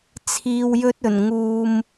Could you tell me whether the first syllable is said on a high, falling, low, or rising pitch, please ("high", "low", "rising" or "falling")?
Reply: low